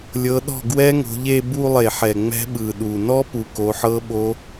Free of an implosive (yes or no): no